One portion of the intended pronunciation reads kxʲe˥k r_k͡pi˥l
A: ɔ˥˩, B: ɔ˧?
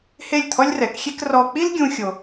B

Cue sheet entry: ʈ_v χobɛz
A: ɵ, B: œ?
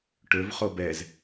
A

